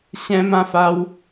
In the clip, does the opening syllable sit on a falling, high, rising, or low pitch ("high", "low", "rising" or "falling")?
high